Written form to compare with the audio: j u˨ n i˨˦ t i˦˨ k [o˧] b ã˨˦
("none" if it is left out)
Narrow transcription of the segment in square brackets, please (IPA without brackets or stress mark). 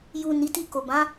o˨